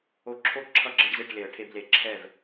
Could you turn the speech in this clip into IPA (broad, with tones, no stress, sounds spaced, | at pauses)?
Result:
o˧ ǁʰ o˥˩ ǁʰ ʌ˥˩ ɡ͡ǁ ʌ˧ ɖ z e˥˩ ʈ l e˨˩˦ ə̯ ʈʰ e˧ b l e˨˩˦ ǁʰ ɛ˥˩ v